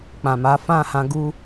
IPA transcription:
k͡p ã˨ m a˨˦ f ã˦˨ h ã˧ ɡ u˧

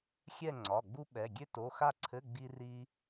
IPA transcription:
xʲ ɛ˥˧ ŋ͡ǀ ɒ˩˧˩ ɡ͡b u˥ ɓ ɛ˩˧˩ ɡʲ ø˥ t o˩˧˩ x a˥˧ ǀʰ ɘ˧˥˧ ɡ͡b i˥ r i˥

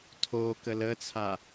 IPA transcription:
tʰ o k ə l ə t͡sʰ a

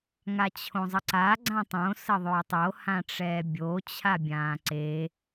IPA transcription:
ŋ a t͡ɕʰ õ zˤ ə ǀ a ɡ͡ǀ ã tˤ õ s ə ðˤ øː tˤ o h ã ʈ͡ʂ ɛː bʲ o t͡ɕʰ a bʲ ãː ǀ e

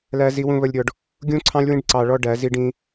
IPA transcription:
l æ˦ z i˦ w ũ˦ β ə˦ lʲ ɾʲ ɔ˧ ɖ | ɡʲ ũ˦ ǀʰ ɑ̃˦ lʲ w ĩ˦ ɖ ǀ ɑ˧ ɭ ɔ˦ ɖ æ˨˦ z i˦ ɖ ĩ˦

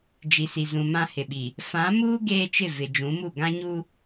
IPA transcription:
d͡ʒ i˨ s i˨ z ũ˨ m ã˦ h ɪ˨ ɓ i˨ | f ã˨˦ m uː˦ ɡ eː˦ t͡ʃ ɪ˦˨ v ɪ˨ d͡ʒ ũ˨˦ m u˦˨ ɡ ã˦ ɲ u˦

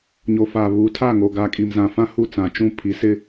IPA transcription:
ɲ o˨ f a˨ β u˨˦ tʰ a˦˨ ŋ o˨ ɡ a˨ kʼ i˨ m z ã˨ f ã˦ h u˦˨ t͡s ã˨ t͡ʃ ũ˦˨ pʰ i˨˦ s ɪ˦

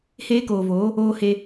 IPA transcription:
h eː˦ k oː˨ v oː˨˦ | oː˦ h e˦

